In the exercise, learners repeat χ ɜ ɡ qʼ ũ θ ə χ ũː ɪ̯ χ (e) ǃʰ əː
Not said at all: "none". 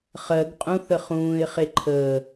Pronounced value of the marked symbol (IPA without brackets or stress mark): e